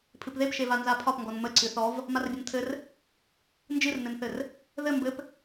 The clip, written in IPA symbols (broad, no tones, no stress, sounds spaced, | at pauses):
pʰ ɨ p ð e p ʃ e v a n z a pʰ ɒ p ŋ ɡ ɔ n m ə ǀ ɨ θ ɔ v | m a r bʲ ə n tʰ ɘ r | n d͡ʒ ɨ r n ɘ n θ ɘ r | ð ɘ m b ɘ p